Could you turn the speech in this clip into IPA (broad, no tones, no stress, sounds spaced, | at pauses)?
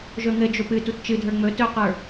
ʒ ɵ ŋ ɘ d͡ʒ o p ɨ t u t t͡ʃ ɨ dʱ ə˞ ŋ͡m ɵ t ɵ q ə˞